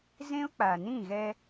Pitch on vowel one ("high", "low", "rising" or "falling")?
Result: high